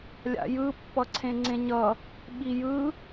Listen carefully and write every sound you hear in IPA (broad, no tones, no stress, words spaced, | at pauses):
lʲa̰jɯ pːʌǀʰẽŋ͡ǀẽɲʌ | ɓijɯ